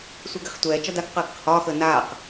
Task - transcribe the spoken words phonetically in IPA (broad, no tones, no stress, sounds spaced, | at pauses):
sʷ e ɡ ɛ χ tʷ ɛː t͡ʃ ɒ d a k q əː ɡ ə q h ɒː x əː n aː q